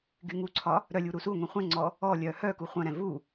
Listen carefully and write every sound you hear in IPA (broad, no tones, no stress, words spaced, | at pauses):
ɡyŋuǀʰɒ | ɾœ lʲuɾusuŋʷɛ̃ χʷɛ̃ŋ͡ǀɔ | ɔlʲœ hœ kuχʷœ̃ɾɛ̃ vu